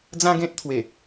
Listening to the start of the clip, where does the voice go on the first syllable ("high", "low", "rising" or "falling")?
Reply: high